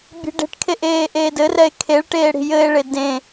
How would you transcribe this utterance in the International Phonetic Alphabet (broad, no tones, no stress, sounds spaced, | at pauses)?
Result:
bʲ e̤ ɖ e̤ ʈ kʰ e ʔ eː ʔ eː d ɘ r ɛ e̯ kʰ e ɭ ʈ eː ɽ i̤ j ɘ e̯ ɭ e d ẽ